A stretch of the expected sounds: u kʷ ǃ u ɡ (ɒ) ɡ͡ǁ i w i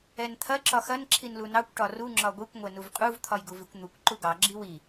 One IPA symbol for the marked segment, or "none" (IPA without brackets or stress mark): ɑ